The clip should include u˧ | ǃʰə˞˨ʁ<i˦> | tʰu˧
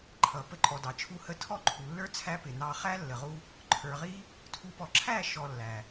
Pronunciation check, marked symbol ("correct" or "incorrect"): correct